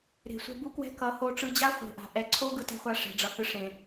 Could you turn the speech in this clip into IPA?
ɾ e̤˨ sʷ ɛ̤˧ b u˦ k w ɛ̤˦ k ʌ˨˦ h o˧ ʈ͡ʂ ɯ˧ d͡ʑ a˦ χʷ e̤˨ ʔ a̤˨ ʔ ɛ˨ ǀʰ o˦ ɡ ɯ˦ t ɛ̤˦ χʷ a˦ ʂ ɛ̤˧ ɖ͡ʐ ʌ˧ h ɯ˦ ʂ ẽ˨

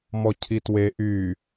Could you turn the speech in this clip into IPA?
m ɔ cʰ i t w e ʔ y

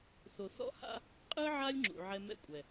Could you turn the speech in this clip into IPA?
θ o˨ θ ɔ̰˦ h a̰˦ | qʼ ɯ˦ ʕ a˦ lʲ ŋ͡ǁ ṵ˨ ʕ ɛ˦ m ɛ̰˦ kʷʼ ɛ˨

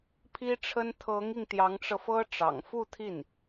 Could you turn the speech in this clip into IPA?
pʰ i˥ ʈ͡ʂʰ ə˥ n t̪ʰ ɤ˧˥ ŋ i˧ ŋ t̪ j ɑ˧˥ ŋ ʈ͡ʂ ɤ˧ f ɤ˥ ʈ͡ʂ ɑ̰˨˩ ŋ f u˥˧ t̪ʰ i˥˩ n

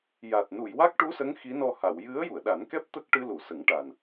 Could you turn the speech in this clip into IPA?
j a˨˩ t̚ n u˨˩˨ j w a˦˥ k̚ ʈ u˧˥ s ə˧˥ ŋ x i˧˥ n ɔ˧ h a˨˩˨ w j ɨ˧˥ ə̯ j u˨˩˨ ə̯ ɗ a˨˩˦ n k ɛ˦˥ p̚ t̪ ə˦˥ k̚ ʈ ɨ˧ l u˨˩˨ s ə˨˩˦ ŋ ʈ a˨˩ n

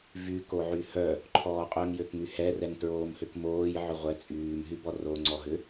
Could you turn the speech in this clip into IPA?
v y k o ʕ y h œ | ǃʰ ɔː qʼ œ ŋ j ø k ŋ y h ɛ r ɛ ŋ t ɹ oː m h ʏ k m oː j ʕ ʏ ʁʷ ɛ t͡sʼ yː m ɦ y b ɔ r o ŋ͡ǀ ɔ ɦ ʏ

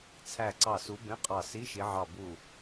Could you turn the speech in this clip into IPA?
t͡sʰ æ˧˩ ǀ ɑ˧˩ s u˨˦ b ẽ˧˥˧ qʼ ɑ˧˩ s i˧˥˧ ʃ i˨˦ ʕ ɑ˧˩ b u˧˩

